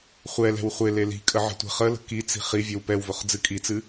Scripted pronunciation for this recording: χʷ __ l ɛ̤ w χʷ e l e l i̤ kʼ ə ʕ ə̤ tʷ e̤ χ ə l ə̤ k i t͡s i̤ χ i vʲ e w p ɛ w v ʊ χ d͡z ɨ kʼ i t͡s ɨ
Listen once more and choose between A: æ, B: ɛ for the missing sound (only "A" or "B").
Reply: B